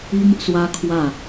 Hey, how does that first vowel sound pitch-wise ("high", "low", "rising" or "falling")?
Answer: high